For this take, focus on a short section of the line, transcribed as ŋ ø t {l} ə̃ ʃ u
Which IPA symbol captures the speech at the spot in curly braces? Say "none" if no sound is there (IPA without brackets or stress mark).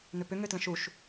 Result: l